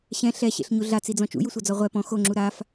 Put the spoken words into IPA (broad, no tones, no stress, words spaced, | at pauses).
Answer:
ɕɛ̃ ɬɛɕḛɬɲu ɮat͡sid͡zɔ̃ t͡ʃṵjusʷɤd͡zɔ ʁʷɛ pɔ̃ xoŋ͡ǁu ɾaf